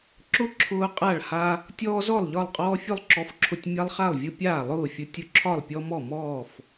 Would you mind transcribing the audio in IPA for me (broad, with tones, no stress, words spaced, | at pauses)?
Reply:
ǁʊ˥˩ ǁʰʊː˦qʼa˥˩ɭha˦ | tʲɔː˦zɔ˥˩lˠ ʎɒ˥˩lˠqʼɔː˦fʲʊ˥˩lˠ ǁɔ˦fǁʰʊ˦tʲ mʲa˦lˠχa˥˩lˠvʲʊ˦ pʲaː˥˩lˠʊː˥˩ fʲʊ˦tʲʊ˥˩ ǁʰɒ˥˩lˠpʲɔ˦mɔ˥˩mɔː˥˩f